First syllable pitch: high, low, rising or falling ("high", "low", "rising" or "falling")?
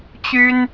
high